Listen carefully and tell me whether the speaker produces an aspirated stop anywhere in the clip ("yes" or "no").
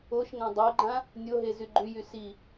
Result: no